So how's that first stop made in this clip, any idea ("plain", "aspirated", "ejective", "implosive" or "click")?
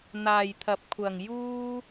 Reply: aspirated